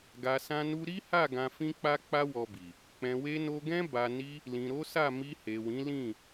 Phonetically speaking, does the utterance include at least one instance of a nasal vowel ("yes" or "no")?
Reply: yes